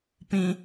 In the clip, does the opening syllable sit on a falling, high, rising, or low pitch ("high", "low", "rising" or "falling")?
high